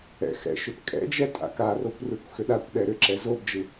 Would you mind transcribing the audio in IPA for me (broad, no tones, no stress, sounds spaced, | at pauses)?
ɛ̰ x ɛ̰ ʃ ʏ t kʼ ɛ̰ d͡ʒ ɛ tʼ a̰ k a r o kʷ r ɯ kʷ x ʏ ɗ a kʷ ɗ ɛ ɾ ʏ ǁ ɛ z o b d͡ʒ ɯ